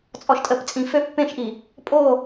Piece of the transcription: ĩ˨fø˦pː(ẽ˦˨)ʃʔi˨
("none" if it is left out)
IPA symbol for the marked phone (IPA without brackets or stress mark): ẽ˦˨